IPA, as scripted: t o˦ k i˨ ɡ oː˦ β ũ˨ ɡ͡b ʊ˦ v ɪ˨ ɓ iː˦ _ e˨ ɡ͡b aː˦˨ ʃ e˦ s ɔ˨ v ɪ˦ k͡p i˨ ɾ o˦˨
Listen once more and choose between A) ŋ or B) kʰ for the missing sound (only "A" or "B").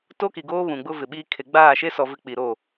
B